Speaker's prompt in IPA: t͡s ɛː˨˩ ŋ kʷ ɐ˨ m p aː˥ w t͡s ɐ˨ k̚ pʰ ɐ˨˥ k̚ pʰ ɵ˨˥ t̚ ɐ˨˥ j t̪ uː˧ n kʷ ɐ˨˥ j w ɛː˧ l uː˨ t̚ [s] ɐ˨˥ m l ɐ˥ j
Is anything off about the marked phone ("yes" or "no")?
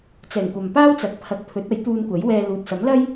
no